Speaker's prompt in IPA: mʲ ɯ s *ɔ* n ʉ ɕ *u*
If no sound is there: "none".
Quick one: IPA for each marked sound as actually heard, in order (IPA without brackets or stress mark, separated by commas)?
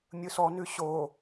ɔ, o